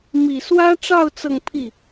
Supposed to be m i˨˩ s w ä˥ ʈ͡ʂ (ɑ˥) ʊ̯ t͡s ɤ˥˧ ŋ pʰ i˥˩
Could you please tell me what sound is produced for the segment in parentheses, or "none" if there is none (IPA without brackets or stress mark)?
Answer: ɑ˥˧